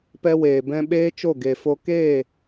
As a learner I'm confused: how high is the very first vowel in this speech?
mid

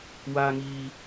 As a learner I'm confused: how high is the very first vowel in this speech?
low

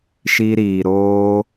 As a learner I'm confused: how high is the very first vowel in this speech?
high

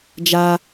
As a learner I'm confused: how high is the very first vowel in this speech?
low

